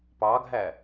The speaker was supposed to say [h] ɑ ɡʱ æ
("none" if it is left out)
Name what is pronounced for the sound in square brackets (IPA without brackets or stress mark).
p